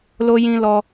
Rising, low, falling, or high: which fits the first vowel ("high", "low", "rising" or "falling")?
high